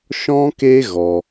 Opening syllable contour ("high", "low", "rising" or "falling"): high